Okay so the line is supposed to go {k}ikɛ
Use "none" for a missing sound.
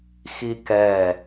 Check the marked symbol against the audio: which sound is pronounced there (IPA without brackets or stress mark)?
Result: x